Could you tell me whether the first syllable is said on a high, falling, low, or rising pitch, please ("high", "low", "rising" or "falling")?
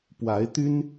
rising